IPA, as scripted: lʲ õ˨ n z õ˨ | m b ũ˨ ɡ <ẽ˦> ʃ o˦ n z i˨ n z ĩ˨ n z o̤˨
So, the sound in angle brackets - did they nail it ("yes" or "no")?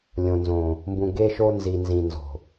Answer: no